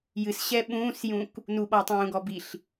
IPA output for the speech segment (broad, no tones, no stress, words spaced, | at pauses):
jɨsɕɛ ɓũːsjũk | nuɓɔtˤũːɡɔ biɬ